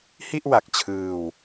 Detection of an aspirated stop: present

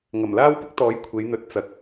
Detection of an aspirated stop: present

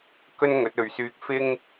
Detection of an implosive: absent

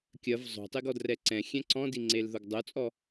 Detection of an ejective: present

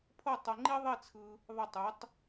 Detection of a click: present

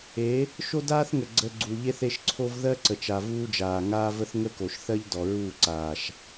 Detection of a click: present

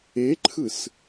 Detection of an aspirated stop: present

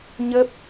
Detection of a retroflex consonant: absent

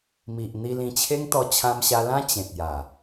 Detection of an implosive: absent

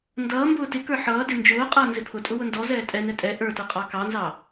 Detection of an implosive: absent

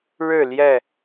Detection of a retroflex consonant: present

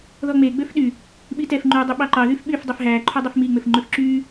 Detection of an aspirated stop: present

